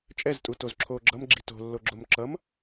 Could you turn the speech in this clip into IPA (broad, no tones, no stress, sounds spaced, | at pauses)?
t͡ʃʼ ɛ z tʼ u t o z ǁʰ o ɡ͡ǁ ʌ m ɡ͡ǁ i̤ t o̤ lː o ɡ͡ǁ o m ǁ ʌ m